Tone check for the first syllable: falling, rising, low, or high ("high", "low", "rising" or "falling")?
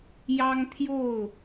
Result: high